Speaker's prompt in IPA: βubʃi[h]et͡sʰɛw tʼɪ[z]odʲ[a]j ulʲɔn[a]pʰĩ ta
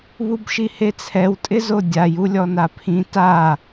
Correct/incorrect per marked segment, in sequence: correct, correct, correct, correct

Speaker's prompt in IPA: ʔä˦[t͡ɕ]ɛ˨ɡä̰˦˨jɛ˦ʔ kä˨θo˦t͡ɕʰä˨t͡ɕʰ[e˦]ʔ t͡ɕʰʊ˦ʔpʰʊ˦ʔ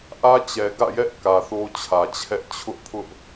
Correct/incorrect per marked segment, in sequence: correct, incorrect: ɛ˦

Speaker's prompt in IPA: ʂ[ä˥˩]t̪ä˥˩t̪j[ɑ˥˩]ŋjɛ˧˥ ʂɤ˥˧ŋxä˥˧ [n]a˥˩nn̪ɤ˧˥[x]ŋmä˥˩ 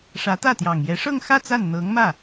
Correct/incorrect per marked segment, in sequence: incorrect: ä˧˥, incorrect: ɑ˨˩, incorrect: t͡s, incorrect: none

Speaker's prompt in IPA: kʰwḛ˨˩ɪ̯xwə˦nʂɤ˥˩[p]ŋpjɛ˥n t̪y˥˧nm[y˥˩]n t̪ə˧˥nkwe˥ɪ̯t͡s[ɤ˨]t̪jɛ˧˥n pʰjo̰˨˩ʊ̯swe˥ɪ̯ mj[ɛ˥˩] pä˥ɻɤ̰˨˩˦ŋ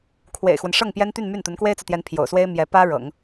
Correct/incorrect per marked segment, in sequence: incorrect: none, correct, correct, incorrect: ɛ˧˥

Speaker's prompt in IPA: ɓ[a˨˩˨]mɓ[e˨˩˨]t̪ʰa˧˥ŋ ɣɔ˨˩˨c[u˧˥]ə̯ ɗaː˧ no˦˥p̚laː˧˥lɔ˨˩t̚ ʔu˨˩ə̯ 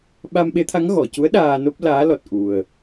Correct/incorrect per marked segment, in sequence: incorrect: a˧, incorrect: e˧˥, correct

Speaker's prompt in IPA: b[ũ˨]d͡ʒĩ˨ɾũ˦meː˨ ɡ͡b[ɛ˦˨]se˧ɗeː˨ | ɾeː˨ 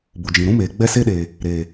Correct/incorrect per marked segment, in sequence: incorrect: u˨, incorrect: ɛ˧

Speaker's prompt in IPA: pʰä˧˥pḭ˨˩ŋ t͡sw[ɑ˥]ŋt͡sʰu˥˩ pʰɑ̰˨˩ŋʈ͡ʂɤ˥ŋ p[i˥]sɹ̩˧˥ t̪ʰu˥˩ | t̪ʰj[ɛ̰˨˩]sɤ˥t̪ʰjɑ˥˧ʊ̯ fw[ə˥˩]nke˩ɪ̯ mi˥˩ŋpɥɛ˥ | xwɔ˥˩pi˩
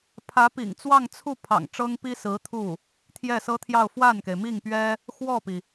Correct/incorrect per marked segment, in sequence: incorrect: ɑ˥˧, correct, incorrect: ɛ˥˩, incorrect: a˥˩

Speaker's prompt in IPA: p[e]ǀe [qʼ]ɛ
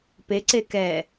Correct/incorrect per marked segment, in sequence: correct, incorrect: k

